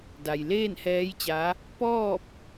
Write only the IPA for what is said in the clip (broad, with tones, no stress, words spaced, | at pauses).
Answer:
da˩jleː˥˨nhɛː˧˥jt͡ɕa˧˥ | pɔː˥˨p̚